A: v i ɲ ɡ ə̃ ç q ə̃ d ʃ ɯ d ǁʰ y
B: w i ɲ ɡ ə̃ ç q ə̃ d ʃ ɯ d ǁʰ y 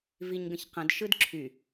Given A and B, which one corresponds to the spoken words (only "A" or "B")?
A